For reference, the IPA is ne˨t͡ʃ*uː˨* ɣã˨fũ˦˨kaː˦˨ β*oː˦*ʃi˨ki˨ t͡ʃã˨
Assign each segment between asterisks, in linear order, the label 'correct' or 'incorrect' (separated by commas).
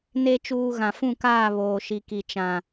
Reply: correct, incorrect